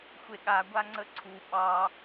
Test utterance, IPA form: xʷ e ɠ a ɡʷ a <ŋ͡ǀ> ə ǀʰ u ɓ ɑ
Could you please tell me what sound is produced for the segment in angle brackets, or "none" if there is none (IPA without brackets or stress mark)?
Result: ŋ͡ǀ